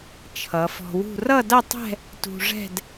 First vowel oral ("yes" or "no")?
yes